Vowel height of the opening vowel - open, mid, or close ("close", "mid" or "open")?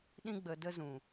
close